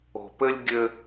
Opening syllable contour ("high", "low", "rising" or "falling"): low